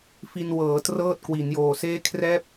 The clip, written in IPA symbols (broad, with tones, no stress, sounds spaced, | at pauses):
f i˧ n w ɤː˩˦ t r ɤː˥˩ t̚ k w i˩˦ n j oː˨˩ s eː˥˩ kʰ r ɛː˦˥ p̚